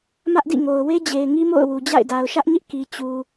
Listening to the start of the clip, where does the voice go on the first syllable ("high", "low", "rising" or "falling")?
high